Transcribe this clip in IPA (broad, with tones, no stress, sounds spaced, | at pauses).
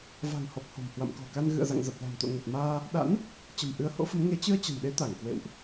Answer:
v a̤˨˩ ŋ h ɔ˨˩ p̚ h o̤˨˩ m h w a̰˧˨ m k ɔ̤˨˩ k a˧ n ɣ ɨ̰˧˨ ə̯ z a̰˧˨ ŋ z ə˨˩ p̚ l a̤˨˩ m t̪ o̰˧˨ ŋ ə˨˩ t̚ m aː˧ | ɗ a̰˧˥ n | t͡ɕ ə̤˨˩ m ʔ ɨ˨˦ ə̯ h o̰˧˥ f ə˨˦ m ŋ e˨˦ t͡ɕ ɨ˧ ə̯ t͡ɕ ə̤˨˩ n ɗ e˨˦ t̪ a˧˩ ŋ k w ḛ˧˨ w ʔ